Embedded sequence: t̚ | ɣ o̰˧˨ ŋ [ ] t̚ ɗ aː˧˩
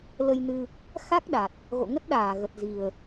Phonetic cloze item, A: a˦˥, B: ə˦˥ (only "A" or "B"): B